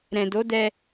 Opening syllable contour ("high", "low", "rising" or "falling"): low